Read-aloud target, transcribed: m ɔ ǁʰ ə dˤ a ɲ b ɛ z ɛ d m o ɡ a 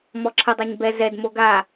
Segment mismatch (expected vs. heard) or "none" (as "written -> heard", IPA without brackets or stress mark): none